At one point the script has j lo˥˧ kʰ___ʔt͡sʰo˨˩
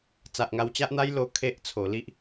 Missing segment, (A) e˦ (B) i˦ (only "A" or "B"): A